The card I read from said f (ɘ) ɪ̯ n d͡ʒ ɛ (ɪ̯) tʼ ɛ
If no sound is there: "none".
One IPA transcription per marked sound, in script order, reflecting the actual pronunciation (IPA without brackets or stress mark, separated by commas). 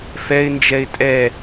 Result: ɛ, ɪ̯